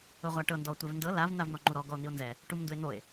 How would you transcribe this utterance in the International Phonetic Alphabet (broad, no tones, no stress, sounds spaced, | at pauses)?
ɤ ʁʷ a ʈ ɤ n d ɔ tʷ ɛ v n d ɤ l a v n̪ a v n̪ ɔ ŋ͡ǃ u ɾ ɔ ɡ ɔ o̯ n̪ i o̯ n z ɛ | ʈ u m n d u e̯ n̪ o e̯